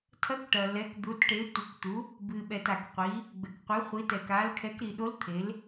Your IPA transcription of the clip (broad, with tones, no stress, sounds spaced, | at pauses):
tʰ ɐ˨˥ k ʈ ɐ˩ l ɛ˩˧ k d̪ u˩˧ t ʈ e˩˧ tʷ ɨ˩ k t̪ u˩˧ | b ɨ˩ ɓ ɛ˩ t a˩ k qʷ i˩˧ | ɡ͡b ɘ˩ k qʷ ɛ˩˧ χʷ i˩˧ t ɛ˩ k a˩˧ l kʰ ɛ˩˧ k ɾ i˩ ɗ o˨˥ l t̪ʰ e˩˧ l